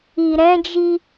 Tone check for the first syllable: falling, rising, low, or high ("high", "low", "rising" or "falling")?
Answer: low